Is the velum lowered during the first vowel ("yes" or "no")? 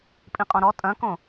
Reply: yes